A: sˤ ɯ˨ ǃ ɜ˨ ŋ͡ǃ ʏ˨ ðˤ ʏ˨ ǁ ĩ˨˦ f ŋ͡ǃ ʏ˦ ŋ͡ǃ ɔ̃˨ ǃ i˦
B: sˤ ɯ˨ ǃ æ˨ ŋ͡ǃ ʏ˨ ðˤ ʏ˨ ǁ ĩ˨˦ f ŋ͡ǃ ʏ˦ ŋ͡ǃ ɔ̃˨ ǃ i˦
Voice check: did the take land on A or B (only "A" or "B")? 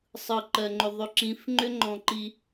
A